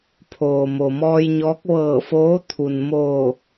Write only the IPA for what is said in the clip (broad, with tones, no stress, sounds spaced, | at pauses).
pʰ oː˩ m o˩ m ɔː˧ j ɲ ɔː˧˥ k̚ ʋ ɤː˧˩ f oː˧˥ t̪ʰ u˩ n m oː˧˩